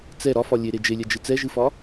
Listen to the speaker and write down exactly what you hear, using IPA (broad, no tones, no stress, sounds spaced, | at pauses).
t͡s ɛ ɾ ɒ f ɒ lʲ e ɾ e d͡ʒ e lʲ ɛ d͡ʒ ɨ t͡s ɛ ʒ ɨ f ɒ